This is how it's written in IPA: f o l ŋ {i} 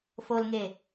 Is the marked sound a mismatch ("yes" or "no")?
yes